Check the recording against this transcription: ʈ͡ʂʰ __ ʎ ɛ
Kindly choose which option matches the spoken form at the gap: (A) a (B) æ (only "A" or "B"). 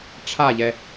A